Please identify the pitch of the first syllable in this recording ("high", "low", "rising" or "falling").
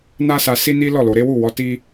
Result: high